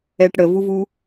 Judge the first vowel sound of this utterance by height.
mid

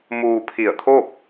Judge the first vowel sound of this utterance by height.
high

